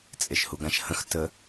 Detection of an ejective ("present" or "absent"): present